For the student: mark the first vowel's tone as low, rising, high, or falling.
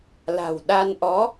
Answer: low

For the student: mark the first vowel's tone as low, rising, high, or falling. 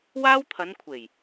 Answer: high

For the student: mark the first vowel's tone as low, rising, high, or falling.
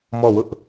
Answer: falling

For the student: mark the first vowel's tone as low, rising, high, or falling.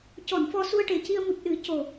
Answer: low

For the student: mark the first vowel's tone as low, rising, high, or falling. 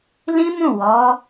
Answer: high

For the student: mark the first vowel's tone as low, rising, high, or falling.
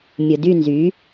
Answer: low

